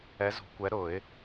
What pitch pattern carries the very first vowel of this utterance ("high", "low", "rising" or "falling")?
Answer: rising